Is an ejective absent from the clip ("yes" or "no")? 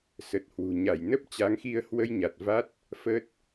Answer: yes